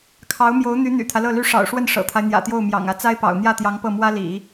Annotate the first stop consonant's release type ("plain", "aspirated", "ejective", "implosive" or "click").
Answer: aspirated